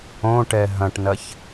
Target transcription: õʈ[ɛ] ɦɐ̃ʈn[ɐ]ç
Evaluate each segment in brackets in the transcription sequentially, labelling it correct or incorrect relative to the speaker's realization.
correct, correct

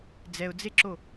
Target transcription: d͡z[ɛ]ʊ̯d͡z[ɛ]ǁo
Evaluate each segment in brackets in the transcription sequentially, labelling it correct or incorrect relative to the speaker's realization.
correct, incorrect: e

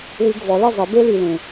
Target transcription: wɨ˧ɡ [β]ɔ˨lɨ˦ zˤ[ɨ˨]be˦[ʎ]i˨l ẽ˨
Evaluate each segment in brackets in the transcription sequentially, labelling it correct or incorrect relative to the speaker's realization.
incorrect: v, correct, incorrect: l

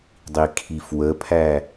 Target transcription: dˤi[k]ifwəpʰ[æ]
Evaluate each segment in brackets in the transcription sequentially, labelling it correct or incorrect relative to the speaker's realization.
incorrect: kʰ, correct

